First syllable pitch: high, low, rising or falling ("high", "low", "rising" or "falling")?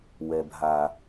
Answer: low